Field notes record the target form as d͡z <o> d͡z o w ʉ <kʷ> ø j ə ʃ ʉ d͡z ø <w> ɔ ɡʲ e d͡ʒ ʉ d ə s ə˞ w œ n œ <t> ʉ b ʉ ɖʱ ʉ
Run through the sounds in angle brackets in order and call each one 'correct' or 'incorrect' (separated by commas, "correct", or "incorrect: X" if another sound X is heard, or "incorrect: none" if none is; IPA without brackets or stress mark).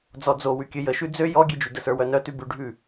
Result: incorrect: ɔ, incorrect: kʲ, incorrect: j, correct